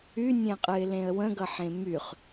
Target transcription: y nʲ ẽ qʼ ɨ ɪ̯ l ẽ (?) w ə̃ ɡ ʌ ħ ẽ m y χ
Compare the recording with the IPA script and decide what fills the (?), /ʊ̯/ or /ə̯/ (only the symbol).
ə̯